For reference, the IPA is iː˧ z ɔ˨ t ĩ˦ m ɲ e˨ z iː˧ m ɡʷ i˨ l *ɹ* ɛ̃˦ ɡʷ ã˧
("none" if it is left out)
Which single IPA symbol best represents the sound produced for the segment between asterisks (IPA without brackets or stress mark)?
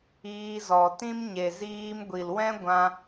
w